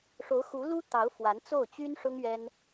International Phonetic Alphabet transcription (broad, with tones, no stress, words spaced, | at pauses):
ʂo˧˥ʊ̯xu˧˥lu˥ t̪ɑ˧˥ʊ̯fwa˧˥n t͡so˥˩ʊ̯t͡ɕy˥n ʂʊ˥ŋ ɥɛ˥n